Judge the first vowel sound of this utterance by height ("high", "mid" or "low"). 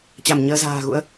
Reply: low